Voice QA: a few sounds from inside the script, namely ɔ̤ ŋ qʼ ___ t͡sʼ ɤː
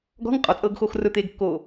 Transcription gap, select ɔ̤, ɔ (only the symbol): ɔ